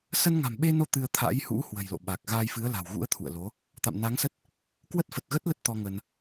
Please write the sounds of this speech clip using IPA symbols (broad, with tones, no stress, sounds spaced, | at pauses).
s ə˧ n ŋ a̤˨˩ m ɓ e˧ n o˧ t̪ ɨ˧ ə̯ t̪ʰ a̰˧˥ j h ṵ˧˥ h w ə̤˨˩ j l o̰˧˨ ɓ a˨˩ k̚ ɣ a˧ j f ɨ˨˦ ə̯ l a̤˨˩ w ɣ ṵ˧˥ ə̯ t̪ʰ ṵ˧˨ ə̯ l o˨˦ | t̪ a̰˧˨ m n a˨˦ ŋ s ə˦˥ t̚ | k w ə˦˥ t̚ f ə˨˩ t̚ ɣ ə˦˥ t̚ l ə˦˥ t̚ t̪ ɔ˧ ŋ ə˧ n